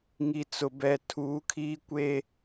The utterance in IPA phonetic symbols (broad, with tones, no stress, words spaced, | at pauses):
ŋi˨t͡sʊ˨ bɛ˨ tʰuː˨˦kʰiː˦ kʷe˦